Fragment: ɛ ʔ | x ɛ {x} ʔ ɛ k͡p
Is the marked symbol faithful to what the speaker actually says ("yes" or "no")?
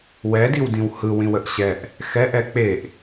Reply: no